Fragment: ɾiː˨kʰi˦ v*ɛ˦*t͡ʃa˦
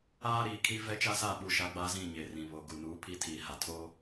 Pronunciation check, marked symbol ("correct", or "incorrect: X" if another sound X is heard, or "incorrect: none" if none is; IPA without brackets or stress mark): correct